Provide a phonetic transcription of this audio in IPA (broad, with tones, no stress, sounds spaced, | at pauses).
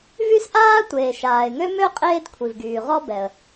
v y˥ s ʔ aː˥ tʷ eː˩ ʃ aː˩ ɪ̯ ŋ ø˥ m ø˥ qʼ eː˥ d kʷʰ i˩ v ɡ yː˩ ʁ ɔ˥ b ɛ˩ ə̯